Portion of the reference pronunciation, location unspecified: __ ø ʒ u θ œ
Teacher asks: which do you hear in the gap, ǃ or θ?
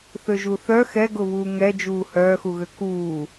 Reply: θ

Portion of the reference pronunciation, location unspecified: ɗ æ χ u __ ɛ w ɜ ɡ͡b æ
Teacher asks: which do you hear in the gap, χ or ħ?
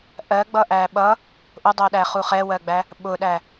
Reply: χ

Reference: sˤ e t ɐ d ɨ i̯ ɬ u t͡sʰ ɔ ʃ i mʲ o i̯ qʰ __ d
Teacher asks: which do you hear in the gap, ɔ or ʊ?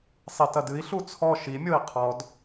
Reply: ɔ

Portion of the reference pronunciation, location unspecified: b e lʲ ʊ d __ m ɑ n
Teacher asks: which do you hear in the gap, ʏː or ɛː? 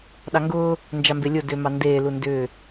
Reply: ʏː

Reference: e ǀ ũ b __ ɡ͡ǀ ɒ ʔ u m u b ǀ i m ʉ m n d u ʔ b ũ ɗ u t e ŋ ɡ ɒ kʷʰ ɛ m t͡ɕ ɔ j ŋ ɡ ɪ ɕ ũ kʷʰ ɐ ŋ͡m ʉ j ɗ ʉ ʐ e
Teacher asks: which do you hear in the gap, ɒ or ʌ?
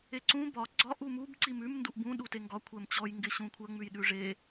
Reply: ɒ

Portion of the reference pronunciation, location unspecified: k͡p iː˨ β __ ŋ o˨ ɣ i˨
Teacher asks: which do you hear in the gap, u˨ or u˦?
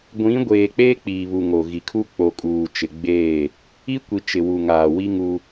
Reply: u˨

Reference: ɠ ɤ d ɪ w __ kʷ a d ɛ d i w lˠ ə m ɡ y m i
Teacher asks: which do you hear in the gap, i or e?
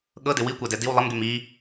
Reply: i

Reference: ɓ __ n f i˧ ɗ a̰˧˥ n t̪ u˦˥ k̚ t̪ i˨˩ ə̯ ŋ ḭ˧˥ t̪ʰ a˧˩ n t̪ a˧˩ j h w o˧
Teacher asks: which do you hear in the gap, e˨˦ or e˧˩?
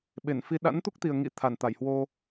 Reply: e˧˩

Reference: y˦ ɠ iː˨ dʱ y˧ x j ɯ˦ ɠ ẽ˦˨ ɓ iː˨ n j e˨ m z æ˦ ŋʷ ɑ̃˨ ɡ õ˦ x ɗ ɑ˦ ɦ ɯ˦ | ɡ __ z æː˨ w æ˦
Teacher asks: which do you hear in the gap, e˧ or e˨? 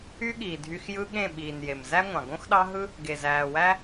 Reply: e˨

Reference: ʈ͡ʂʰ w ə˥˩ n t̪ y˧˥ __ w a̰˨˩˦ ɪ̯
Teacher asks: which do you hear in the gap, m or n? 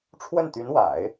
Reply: n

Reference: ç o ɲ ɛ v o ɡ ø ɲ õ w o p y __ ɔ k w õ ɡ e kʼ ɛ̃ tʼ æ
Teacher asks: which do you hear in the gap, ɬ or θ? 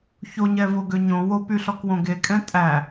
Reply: ɬ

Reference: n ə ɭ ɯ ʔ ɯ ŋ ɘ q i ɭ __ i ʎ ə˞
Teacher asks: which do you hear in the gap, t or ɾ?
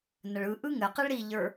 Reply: ɾ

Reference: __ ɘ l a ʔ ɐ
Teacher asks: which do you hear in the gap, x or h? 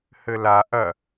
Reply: h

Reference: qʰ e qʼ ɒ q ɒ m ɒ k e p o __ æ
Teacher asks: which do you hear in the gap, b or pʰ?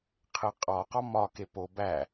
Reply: b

